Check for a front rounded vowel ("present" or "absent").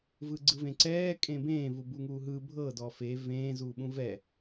absent